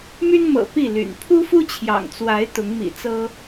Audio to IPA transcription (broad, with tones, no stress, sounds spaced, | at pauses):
m y˦ n m ɤ̰˨˩ p i˥˨ l y̰˨˩ n pʰ u˦ f u˦ t͡ɕʰ j ɑ̰˨˩ ŋ t͡s w a˨˦ ɪ̯ t̪ ʊ˨˦ ŋ m ḭ˨˩ t͡s ɤ˦